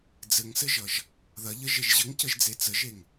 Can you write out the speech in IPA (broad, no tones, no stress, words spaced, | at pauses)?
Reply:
d͡zɘŋsɘʒʌʒ | ðɐʎə ʒeʒʑəŋcəʒd͡ze t͡səʒeŋ